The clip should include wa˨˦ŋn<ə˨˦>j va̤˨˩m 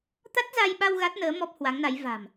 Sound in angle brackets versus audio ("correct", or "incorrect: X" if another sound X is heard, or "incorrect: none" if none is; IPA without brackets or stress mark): incorrect: a˨˦